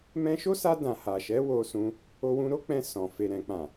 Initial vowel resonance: nasal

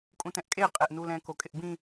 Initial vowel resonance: nasal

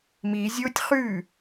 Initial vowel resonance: oral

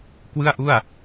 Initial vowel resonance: oral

